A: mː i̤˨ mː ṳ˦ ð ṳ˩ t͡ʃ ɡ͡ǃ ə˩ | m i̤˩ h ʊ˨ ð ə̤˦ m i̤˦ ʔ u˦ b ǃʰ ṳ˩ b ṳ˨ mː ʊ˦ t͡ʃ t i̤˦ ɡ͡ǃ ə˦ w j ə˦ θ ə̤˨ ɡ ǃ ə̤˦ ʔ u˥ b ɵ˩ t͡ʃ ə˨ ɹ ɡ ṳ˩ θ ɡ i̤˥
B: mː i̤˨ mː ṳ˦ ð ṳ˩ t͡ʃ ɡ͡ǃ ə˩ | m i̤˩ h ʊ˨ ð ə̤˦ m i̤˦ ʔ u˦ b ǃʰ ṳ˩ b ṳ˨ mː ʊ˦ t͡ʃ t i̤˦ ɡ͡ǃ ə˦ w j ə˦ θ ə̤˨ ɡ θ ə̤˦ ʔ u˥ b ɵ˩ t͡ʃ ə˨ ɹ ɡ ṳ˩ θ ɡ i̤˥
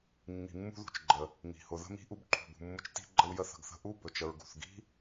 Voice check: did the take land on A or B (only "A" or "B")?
B